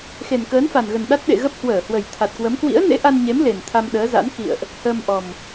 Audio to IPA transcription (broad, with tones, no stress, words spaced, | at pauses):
xe˨˩nkəː˨˦nfa˨˩nɣə˨˩n ɗa˦˥t̚ɗḛ˧˨ ɣə˦˥p̚ hwəː˧˩hwə˨˩j t̪ʰa˨˩t̚kwə˨˦m kwḭ˧˥ə̯nḛ˧˥ʔa˧nɲe˨˦m le˨˩nt̪ʰa˧mɗəː˨˦za̰˧˥n kḭ˧˨ə̯ʔ | həː˧mʔɔ˨˩m